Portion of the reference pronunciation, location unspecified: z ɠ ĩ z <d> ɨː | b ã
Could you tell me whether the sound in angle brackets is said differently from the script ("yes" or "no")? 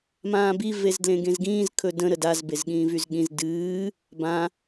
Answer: no